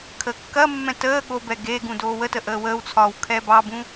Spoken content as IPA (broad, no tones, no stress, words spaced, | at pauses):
kʰəːkːɐmːɛ̃ təː ɠobɛ ɡe ɡũdoːwətə ʔəːwəːwt͡sʰɒːw kʰɛbɑbũ